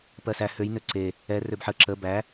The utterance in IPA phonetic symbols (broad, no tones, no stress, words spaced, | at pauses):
pɜsæ høj nøǀe | ɛ røbħə ǁə bæ